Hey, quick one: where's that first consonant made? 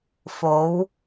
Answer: lips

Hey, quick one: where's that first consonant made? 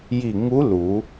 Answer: palate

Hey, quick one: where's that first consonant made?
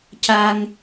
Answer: palate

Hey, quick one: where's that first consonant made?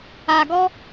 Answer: velum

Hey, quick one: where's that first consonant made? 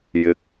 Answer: palate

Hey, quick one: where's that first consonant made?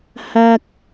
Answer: throat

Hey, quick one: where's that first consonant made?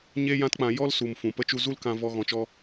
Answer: palate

